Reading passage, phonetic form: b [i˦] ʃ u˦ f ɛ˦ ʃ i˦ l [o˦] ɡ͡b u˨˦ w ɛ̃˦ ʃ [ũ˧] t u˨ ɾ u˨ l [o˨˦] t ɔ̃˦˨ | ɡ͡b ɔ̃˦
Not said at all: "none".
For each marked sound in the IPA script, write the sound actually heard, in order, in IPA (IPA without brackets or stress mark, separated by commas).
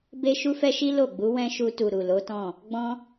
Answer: e˦, o˦˨, u˧, o˨˦